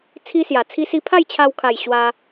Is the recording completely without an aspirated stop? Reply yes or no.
no